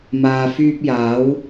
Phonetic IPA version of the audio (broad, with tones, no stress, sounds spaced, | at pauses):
m aː˨ f yː˧ p̚ j aː˨˥ w